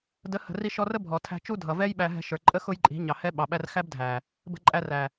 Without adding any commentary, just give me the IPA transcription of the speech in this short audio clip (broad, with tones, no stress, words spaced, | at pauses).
də˨˦hə̤˨ri˧ ʃɔ˧rə˦ bʱɔ˨tʰæ̤˧t͡ʃu˦ dʱʌ˨vɛ˦jɓæ˧ ɦɛ̤˧ʃə˞˨ ǃʼə˦ xʊ˦jǃʼi̤˨˦ ɲɑ˨hɛ˦ ɓɑ˨ɓæ˦r xæ˦bdʱæ˨ | bə̤˧ǃʼæ˧ræ˨